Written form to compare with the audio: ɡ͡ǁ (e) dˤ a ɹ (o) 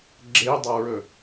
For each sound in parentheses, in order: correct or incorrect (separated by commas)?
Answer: correct, incorrect